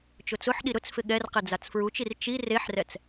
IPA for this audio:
t͡ʃ ʊ t͡s ʊ ħ ɗ i ɾ ʊ t͡s f ɪ ɠ ɛ r q e d͡z a t͡s f ɹ u t͡ʃ i r t͡ʃ i r e ħ r ɛ t͡s

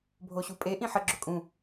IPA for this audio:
bʱ o ɕ u pʼ e ʔ ĩ ħ ə ɡ͡ǁ ʊ kʼ ũ

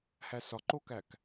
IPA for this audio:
h æ s ɒ ǃ o k æ k

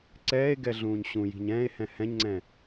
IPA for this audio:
ǀ ɛː e̯ ɡ ɛ ɮ ũː ɲ ɕ ũ j i̤ ɲ ɛ̃ː e̯ h ɛ̃ h ɛ̃ ɲ ŋ͡ǀ ɛ̃

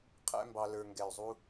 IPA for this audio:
qʰ æ̰˥ m b ɑ˧ l ə˞˧ ŋ ɡ ɛ˧˩ y̯ zˤ u˥

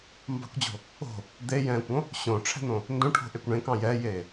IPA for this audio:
m b ɑ̤ kʷ d͡ʑ o̤ | o̤ | d̪ e j ɛ̃ː kʷ õ | ɕ õː ʈ͡ʂʰ ɛ̤ n̪ õ | n d õ ʈʰ o̤ ʔ e kʷ ɳ ẽ k ɑ̃ j ɛ j eː

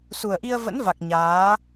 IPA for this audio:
s u˨˩ ə̯ ʔ i˧ ə̯ v ə̰˧˥ n v a˨˩ k̚ ɲ aː˨˦

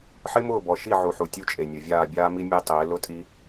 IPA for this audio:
ħ ɪ˦ m ʊː˦˨ b ɔ˨ ʃ i˦˨ ʕ u˨ ħ u˨ tʲ u˦ t͡ʃʼ e˨ nʲ ʊ˨ vʲ aː˦˨ bʲ aː˦ m i˦ mʲ e˦ tˤ ɪː˨˦ l ʊ˦ tʼ i˦

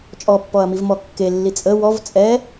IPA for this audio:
t͡ʃʼ ɔ pː ɔ ɐ̯ m i v m ɔ kː e lː i t͡sʼ ə w ɔ v t͡sʼ ɛ

